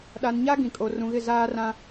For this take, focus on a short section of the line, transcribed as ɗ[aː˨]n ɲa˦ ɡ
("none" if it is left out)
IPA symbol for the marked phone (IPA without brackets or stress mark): a˨